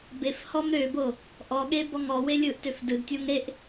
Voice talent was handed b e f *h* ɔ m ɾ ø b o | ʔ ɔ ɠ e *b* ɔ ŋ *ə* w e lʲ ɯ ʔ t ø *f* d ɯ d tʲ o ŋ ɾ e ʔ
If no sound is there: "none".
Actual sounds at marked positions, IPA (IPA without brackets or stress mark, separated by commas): h, b, ɔ, f